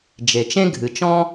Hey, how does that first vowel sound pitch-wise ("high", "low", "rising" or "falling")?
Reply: low